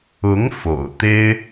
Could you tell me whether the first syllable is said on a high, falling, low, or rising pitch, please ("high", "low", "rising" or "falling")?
rising